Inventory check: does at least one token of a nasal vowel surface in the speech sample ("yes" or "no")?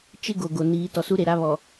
no